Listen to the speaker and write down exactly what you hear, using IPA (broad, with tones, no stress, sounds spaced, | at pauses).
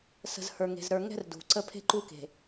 s ə̤˨ z h ə˞˨ ŋ e̤˨ z ɾ ə˞˨ ŋ ɛ̤˦ r d ṳ˨ ǀ ə˦ pʰ e̤˦ ǃ u˦ k e̤˨